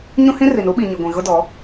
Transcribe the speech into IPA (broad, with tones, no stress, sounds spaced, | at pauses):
ɲ ũ˦ h ĩ˦ r i˨ n u˦ ɓ i˨ ɲ i˨ ɡʷ ĩ˨ ɣ ʊ˦ d ɔ˨˦